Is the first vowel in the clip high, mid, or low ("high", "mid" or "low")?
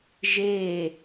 mid